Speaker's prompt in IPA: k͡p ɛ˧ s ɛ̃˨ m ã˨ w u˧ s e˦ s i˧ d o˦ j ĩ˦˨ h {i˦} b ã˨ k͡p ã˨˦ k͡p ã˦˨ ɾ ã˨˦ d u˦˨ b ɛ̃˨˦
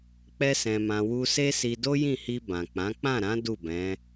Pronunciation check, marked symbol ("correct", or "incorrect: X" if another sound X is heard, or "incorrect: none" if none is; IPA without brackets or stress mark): incorrect: i˧